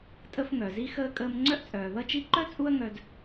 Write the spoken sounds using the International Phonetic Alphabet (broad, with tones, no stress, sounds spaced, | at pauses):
tʼ ə˧ f ŋ œ˩ z i˥ x əː˧ kʼ əː˧ m ŋ͡ǀ œ˥ ʔ t͡sʼ œː˩ ð ʌ˥ t͡ʃ i˥ ǃ œ˥ t͡sʼ u˥ ɐ̯ ŋ œ˧ d